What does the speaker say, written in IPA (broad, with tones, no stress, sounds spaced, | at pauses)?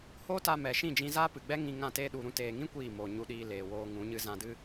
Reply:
h oː˦ t a˧ m ɛ˨ ʃ ĩ˦˨ d͡ʒ ĩ˧ z aː˦ p ɨ˨ ɡ͡b ɛ˦ ŋ ĩ˧ ŋ ã˦˨ t eː˦ ɗ u˨ ɾ ũ˧ t eː˨ ŋ ĩ˦ kʷ iː˦˨ m oː˨ ɲ u˧ ɗ iː˧ l eː˨ w oː˧ ŋ ũ˨˦ ɲ ɨ˦ z ã˧ d ɨ˦